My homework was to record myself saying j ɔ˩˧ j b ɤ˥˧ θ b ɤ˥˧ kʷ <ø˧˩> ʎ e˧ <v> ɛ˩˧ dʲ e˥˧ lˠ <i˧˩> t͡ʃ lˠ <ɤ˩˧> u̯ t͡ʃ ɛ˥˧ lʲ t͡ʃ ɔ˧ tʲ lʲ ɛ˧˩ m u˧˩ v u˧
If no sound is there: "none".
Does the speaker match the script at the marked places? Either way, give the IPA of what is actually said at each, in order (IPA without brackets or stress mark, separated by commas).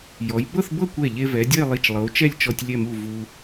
ɛ˧˩, v, i˧˩, ɤ˩˧